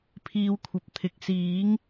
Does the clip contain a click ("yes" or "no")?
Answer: no